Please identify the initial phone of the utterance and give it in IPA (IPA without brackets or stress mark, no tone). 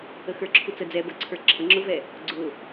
ə